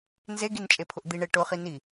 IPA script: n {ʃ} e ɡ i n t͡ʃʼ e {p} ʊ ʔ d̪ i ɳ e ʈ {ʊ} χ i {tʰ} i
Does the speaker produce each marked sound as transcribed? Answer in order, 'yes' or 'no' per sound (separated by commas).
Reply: no, no, yes, no